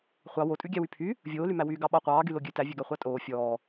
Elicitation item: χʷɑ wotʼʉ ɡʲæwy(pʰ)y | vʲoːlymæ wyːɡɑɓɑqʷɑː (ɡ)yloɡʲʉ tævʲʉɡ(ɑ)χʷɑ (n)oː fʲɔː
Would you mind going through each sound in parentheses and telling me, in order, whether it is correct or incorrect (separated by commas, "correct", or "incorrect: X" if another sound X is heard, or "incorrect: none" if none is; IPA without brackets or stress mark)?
correct, correct, correct, incorrect: tʼ